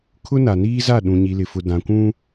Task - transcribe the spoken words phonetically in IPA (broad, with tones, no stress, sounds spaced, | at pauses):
kʰ ʊ˦ n a˨ n iː˦ z a˦˨ ɗ ũ˨ ɲ i˨ l ɪ˨ f ʊ˨ d ã˨ kʷ ũ˦